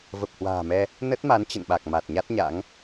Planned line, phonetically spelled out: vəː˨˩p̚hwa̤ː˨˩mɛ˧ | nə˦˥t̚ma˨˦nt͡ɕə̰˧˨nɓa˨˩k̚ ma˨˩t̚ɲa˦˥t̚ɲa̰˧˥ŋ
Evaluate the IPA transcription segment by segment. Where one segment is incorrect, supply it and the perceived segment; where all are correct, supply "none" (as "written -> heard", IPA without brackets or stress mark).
əː˨˩ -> ə˨˩